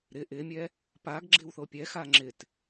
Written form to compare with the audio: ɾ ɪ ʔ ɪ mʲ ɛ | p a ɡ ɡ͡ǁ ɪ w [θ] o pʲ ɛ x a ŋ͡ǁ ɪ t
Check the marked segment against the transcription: correct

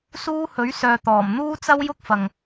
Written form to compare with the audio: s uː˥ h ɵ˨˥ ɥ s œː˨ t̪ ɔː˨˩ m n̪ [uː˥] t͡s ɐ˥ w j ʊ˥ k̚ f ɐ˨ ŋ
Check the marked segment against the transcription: correct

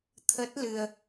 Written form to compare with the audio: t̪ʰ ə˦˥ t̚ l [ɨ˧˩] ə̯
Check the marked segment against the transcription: incorrect: ɨ˧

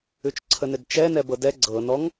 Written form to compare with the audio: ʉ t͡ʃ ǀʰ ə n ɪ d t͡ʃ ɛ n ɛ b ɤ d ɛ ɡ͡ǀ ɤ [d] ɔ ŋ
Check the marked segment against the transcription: incorrect: n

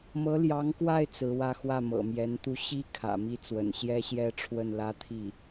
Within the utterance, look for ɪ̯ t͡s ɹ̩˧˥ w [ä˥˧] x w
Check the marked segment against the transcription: correct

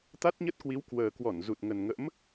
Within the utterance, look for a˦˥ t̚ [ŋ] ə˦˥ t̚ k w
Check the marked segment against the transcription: incorrect: ɲ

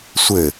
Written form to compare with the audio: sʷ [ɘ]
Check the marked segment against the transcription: correct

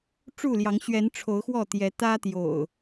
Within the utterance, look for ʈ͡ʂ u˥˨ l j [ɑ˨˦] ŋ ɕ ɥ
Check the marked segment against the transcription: correct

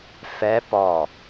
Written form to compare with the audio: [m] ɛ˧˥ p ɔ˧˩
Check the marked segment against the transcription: incorrect: f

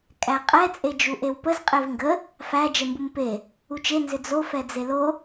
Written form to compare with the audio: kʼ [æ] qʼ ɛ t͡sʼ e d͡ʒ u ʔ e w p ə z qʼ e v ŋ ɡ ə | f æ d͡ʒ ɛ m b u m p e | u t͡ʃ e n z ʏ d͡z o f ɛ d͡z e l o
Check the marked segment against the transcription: correct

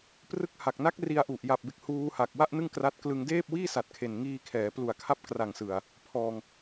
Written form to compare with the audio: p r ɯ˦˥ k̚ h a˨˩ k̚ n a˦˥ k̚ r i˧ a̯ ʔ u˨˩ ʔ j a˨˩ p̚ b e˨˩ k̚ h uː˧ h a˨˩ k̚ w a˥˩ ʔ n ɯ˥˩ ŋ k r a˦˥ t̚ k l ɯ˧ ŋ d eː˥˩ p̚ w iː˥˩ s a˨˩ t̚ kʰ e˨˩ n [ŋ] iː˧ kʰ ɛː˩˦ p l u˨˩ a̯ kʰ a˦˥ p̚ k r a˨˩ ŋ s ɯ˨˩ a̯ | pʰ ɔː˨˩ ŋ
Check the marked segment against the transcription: correct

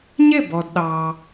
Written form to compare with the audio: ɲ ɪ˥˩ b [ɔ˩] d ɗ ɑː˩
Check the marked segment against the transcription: correct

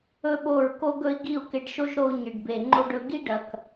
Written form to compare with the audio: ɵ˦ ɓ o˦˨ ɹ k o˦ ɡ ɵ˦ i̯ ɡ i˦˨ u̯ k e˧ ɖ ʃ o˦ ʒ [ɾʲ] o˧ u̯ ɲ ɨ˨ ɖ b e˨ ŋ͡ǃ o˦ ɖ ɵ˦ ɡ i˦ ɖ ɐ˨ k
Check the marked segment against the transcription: incorrect: ɾ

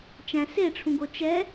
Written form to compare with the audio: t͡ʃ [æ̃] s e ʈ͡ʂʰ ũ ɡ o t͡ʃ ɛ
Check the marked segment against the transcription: correct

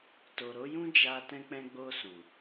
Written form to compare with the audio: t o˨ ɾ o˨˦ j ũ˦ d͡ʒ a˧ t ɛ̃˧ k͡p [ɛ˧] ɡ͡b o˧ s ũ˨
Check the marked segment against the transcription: incorrect: ɛ̃˧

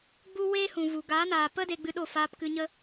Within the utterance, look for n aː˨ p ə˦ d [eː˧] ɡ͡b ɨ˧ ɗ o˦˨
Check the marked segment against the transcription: incorrect: e˧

